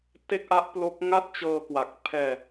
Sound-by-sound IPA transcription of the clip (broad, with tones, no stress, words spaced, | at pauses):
te˥˩k̚ʔa˦˥ʔplo˦˥k̚ ŋa˥˩t̚t͡ɕɤː˧kwa˨˩k̚ pʰɛː˧